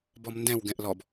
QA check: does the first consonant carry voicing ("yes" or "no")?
yes